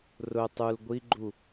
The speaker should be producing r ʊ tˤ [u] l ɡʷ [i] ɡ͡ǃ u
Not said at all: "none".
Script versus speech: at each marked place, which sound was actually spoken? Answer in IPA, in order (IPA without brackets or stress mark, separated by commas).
u, i